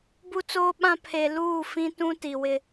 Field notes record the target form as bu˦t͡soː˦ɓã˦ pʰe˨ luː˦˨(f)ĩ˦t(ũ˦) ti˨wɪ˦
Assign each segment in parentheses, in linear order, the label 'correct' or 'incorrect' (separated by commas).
correct, correct